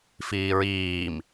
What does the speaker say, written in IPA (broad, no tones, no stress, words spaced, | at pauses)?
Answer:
fiːɹiːm